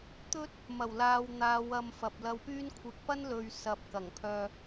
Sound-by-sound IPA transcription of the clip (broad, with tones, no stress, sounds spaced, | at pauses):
t̪ ɵ˥ t̚ | m ɐ˨˩ w l aː˨ w n̪ aː˨˧ w ɐ˨ m f ɐ˨ p̚ l ɐ˧ w p yː˥ n kʷʰ ɪ˧ k̚ p ɐ˥ n l ɵ˨ ɥ s ɐ˨ p̚ k ɐ˨˩ ŋ pʰ œː˧